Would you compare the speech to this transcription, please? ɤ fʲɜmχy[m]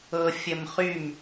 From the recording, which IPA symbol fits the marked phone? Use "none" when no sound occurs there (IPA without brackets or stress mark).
m